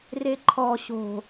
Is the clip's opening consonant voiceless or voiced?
voiced